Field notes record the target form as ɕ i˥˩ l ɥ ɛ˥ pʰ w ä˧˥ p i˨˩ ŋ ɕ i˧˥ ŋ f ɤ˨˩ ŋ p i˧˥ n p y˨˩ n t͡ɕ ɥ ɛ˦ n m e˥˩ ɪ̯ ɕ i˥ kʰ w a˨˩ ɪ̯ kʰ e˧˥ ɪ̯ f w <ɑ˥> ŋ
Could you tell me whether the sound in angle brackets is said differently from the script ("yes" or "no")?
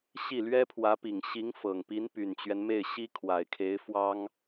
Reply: no